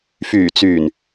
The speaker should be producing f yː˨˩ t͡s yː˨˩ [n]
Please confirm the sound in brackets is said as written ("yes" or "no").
yes